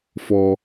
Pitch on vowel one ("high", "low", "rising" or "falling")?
low